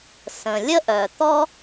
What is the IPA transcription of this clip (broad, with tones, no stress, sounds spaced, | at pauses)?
s ə̃˩ lʲ ə˥ ʔ œ˩ t̪ ɔ˥